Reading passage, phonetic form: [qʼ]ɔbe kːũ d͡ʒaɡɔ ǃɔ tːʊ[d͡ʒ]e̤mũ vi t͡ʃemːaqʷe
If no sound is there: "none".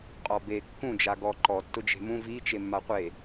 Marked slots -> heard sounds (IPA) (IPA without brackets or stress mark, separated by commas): qʼ, d͡ʒ